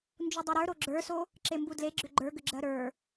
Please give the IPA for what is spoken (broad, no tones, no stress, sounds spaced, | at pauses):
n d͡ʒ u dˤ e ɾ ə˞ ɾ o ɡ͡ǁ ə˞ s o | ǁ e m b u d l e ɡ͡ǁ ʏ ɡ͡ǃ ə˞ ɡ ʏ ɡ͡ǁ ɜ ɾ ə˞